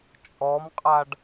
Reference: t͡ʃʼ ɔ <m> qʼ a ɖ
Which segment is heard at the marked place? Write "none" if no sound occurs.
m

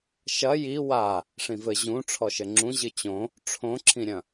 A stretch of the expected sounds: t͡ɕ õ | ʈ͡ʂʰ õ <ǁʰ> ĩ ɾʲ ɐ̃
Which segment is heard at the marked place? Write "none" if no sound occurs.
ǁʰ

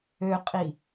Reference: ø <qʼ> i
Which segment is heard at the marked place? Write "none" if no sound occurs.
qʼ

